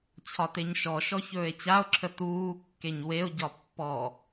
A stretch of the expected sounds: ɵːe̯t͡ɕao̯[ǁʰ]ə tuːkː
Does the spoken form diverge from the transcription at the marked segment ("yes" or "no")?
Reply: no